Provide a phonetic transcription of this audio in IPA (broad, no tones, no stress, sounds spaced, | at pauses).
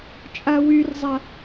t͡ʃʼ a w y r zˤ a